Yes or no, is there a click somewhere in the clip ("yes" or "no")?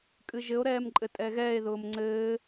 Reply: yes